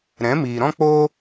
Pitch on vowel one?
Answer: rising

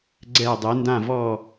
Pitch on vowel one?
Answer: falling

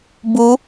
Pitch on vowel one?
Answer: rising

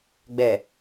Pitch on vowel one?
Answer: low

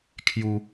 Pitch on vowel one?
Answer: high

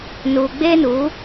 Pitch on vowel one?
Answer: low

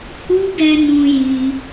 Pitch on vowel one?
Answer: high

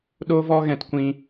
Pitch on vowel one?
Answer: high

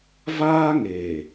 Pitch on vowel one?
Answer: high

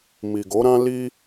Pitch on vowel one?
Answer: low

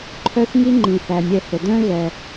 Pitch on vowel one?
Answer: high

